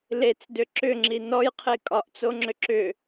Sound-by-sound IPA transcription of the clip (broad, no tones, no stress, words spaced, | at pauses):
let͡sdʏ ǁʏŋ͡ǁi nɔjqʰe kʼɒʔt͡soŋ͡ǁʏ ǁʏ